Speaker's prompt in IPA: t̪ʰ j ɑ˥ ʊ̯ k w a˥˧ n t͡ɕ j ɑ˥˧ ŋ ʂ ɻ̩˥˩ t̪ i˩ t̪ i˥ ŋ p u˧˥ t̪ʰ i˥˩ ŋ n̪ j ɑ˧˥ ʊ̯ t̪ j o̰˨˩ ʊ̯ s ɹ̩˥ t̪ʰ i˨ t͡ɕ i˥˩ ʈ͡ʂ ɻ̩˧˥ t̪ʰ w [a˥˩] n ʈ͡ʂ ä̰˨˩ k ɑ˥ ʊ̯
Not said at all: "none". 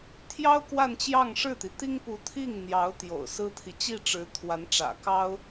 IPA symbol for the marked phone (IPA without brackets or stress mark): a˧˥